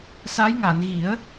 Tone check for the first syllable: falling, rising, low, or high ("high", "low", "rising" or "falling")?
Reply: rising